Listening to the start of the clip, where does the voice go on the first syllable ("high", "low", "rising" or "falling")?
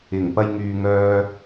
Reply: low